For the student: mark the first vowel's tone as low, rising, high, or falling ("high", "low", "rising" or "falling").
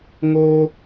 high